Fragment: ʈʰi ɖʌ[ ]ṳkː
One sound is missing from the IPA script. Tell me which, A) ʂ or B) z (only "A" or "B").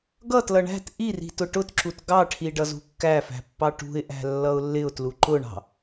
B